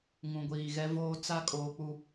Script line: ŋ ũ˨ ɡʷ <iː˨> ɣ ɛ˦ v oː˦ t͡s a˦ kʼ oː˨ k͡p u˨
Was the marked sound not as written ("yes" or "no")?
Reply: no